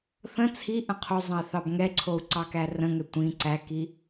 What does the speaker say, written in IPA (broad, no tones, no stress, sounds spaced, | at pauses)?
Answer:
θ ə̃ t͡sʰ i ʔ ə̃ qʰ o zˤ ə̃ i̯ θ ɑ b ŋ ɛ ǀʰ o u̯ ǀ ɑ k æ r ə̃ ŋ ɛ tʷ ĩ ǀ æ k i